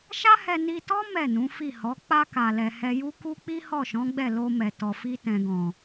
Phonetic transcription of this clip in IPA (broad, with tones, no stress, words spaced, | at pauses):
ʃa˦hɛ˧ni˧tɔ˦ mɛ˦˨nũ˨˦ fi˦˨hɔ˨˦ k͡pa˧ka˨lɛ˨ hɛ˧ju˦ ku˦ k͡pi˦hɔ˦˨ʃɔ̃˨˦ɡ͡bɛ˦˨ lo˧mɛ˨tɔ˨fi˧ tɛ̃˨ɡɔ̃˨